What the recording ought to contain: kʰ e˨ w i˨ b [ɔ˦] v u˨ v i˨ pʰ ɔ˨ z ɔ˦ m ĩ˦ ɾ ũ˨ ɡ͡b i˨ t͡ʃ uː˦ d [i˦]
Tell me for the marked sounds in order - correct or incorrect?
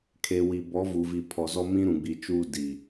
incorrect: ɔ˨˦, incorrect: i˨

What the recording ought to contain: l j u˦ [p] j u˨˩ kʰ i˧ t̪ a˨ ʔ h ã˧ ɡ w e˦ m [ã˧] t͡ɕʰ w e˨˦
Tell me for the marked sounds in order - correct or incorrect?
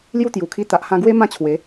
incorrect: t̪, incorrect: ã˥˧

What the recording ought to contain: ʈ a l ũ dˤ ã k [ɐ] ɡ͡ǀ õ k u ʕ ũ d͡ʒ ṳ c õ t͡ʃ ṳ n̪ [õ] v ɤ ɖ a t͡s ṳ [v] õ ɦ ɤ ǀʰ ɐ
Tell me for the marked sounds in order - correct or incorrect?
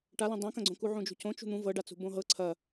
incorrect: ɐ̃, incorrect: ũ, incorrect: b

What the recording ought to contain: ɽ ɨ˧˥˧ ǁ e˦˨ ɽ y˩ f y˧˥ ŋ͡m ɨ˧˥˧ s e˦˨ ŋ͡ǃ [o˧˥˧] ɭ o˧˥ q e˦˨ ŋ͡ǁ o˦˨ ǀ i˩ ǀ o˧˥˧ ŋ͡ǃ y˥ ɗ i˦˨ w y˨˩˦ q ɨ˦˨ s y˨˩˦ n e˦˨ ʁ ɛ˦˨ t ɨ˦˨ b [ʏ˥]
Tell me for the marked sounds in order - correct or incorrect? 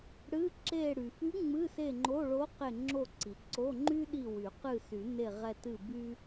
correct, incorrect: y˥

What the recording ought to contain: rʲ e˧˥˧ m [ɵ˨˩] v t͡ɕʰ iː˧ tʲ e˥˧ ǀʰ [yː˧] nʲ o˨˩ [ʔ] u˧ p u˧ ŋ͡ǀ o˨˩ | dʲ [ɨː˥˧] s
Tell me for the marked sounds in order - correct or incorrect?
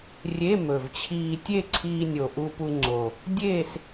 correct, incorrect: iː˧, correct, incorrect: eː˥˧

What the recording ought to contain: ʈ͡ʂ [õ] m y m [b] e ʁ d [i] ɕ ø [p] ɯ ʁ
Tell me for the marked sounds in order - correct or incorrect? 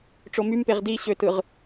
incorrect: o, incorrect: p, correct, incorrect: t

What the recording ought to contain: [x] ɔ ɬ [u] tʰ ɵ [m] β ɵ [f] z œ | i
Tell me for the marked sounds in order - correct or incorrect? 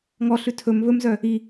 incorrect: ŋ, incorrect: ʉ, correct, incorrect: m

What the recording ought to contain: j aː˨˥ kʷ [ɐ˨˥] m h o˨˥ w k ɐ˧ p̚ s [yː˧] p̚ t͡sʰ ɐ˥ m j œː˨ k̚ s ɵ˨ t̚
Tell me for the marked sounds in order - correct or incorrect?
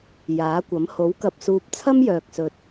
correct, incorrect: uː˧

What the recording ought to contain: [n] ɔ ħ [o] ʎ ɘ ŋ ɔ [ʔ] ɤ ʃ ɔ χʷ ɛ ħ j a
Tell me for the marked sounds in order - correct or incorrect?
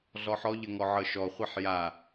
incorrect: ɮ, incorrect: ɔ, incorrect: ʕ

